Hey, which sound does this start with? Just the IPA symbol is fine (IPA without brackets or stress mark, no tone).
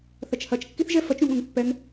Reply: θ